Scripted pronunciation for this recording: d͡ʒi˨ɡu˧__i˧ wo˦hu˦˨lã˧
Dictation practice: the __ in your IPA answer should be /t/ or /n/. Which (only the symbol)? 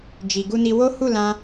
n